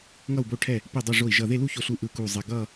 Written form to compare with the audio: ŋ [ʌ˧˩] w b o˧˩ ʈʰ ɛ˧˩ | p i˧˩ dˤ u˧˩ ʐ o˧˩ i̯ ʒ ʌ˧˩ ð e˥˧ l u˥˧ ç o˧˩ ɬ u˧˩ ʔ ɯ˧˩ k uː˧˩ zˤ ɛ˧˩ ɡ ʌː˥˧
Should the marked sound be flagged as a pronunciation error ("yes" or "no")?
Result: no